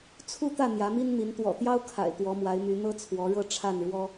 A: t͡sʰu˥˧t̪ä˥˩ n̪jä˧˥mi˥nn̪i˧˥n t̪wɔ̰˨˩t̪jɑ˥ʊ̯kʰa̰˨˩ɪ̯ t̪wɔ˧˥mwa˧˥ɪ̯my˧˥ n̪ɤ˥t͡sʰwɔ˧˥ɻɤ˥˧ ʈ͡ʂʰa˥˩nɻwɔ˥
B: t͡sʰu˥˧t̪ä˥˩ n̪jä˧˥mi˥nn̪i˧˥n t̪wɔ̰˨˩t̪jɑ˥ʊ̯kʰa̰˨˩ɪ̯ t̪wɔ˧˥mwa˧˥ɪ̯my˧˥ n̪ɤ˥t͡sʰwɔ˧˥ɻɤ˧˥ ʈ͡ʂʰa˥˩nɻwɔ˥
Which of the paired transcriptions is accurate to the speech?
A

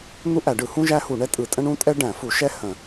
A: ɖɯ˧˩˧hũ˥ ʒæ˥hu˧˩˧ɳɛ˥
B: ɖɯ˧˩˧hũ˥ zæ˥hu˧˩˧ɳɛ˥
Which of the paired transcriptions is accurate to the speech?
A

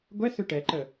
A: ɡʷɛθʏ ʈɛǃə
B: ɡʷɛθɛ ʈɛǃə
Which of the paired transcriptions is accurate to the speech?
A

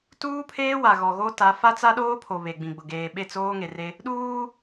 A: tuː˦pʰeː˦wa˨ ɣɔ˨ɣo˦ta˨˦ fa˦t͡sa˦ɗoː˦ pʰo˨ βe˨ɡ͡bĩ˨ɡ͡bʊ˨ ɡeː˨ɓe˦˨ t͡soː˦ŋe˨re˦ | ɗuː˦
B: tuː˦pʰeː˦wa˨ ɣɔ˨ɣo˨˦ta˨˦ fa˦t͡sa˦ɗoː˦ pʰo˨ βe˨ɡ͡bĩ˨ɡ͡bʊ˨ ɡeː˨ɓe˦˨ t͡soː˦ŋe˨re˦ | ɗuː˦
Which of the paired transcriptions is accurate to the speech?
A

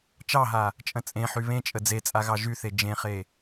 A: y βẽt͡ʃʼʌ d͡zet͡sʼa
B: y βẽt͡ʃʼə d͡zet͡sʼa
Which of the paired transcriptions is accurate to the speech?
B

